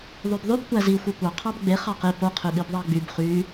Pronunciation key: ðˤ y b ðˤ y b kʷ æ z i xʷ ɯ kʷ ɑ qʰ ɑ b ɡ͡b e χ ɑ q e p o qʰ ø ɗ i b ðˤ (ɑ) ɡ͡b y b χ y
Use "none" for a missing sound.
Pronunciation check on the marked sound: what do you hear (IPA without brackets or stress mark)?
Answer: ɑ